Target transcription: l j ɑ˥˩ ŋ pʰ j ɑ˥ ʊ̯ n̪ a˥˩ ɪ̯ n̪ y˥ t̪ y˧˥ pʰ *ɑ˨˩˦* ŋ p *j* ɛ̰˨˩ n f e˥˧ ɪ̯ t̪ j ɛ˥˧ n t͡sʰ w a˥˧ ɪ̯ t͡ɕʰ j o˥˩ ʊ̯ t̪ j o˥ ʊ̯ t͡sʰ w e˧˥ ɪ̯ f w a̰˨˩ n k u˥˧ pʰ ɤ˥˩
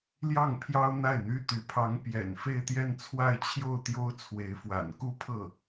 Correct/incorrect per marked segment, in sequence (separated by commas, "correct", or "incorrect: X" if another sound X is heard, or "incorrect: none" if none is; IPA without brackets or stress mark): incorrect: ɑ˧˥, correct